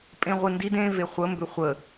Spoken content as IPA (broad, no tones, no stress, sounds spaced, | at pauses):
pʼ ẽ ʁʷ ɨ n d i d ẽ v e χʷ ə m b ʏ χʷ ə